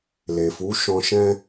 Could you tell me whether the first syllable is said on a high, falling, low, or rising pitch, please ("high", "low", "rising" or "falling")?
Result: low